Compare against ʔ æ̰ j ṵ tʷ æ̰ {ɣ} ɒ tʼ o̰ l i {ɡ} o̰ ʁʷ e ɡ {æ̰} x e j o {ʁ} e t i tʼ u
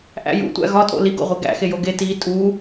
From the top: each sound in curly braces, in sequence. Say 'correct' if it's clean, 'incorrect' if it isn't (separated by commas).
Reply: correct, correct, correct, incorrect